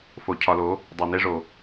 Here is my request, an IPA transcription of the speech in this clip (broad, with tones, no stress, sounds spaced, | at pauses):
f o˨ cʰ ɒ˨ l o˨˦ | dˤ o˨ n e˦ ʐ o˨